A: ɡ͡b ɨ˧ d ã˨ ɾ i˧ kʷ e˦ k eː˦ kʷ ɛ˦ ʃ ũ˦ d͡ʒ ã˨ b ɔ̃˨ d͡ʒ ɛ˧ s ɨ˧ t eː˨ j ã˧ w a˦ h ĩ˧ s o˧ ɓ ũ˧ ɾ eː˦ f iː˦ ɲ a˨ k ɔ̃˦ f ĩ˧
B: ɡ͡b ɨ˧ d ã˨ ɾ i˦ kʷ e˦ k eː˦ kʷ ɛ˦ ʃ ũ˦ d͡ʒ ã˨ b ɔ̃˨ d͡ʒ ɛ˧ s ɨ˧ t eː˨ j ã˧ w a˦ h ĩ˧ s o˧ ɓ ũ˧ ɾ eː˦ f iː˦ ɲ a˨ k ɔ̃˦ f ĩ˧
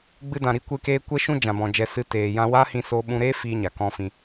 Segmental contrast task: A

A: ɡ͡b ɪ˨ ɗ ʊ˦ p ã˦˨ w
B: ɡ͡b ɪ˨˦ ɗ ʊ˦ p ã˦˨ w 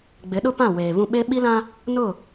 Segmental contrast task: B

